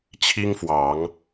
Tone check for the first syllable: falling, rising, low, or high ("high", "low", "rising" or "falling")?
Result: high